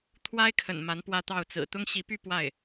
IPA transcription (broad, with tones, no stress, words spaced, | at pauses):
t̪ʰwa˥ɪ̯kʰə̰˨˩n ma˧˥npwä˥˧t̪ɑ˥˩ʊ̯t͡sɹ̩˨˩ t̪ʊ˥ŋɕi˧˥py˥˧ pwa˥˩ɪ̯